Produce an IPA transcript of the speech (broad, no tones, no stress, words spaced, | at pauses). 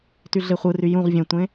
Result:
tyɮeχʷɯry jũʁ vʲẽtʷẽ